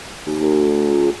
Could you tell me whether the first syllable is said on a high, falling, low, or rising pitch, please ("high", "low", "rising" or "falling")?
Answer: low